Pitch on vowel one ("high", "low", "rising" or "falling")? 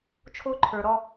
high